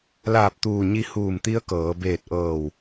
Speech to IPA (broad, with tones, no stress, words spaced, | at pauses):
laː˧˩p̚t̪uː˧˩ɲi˧ huː˧˩mt̪i˧˥ə̯kɤː˩˧ beː˧˩t̚ʔɤː˧˩w